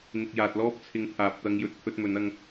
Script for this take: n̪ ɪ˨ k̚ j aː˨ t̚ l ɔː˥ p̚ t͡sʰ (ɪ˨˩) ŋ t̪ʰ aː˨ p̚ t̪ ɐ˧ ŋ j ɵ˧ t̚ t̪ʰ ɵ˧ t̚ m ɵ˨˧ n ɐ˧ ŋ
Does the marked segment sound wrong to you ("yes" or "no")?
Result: yes